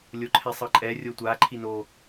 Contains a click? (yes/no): yes